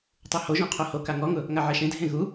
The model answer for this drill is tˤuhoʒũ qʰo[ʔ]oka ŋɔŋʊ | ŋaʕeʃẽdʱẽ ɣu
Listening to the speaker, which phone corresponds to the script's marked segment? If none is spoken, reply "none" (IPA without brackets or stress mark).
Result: h